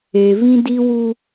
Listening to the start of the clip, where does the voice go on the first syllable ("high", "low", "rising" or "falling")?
low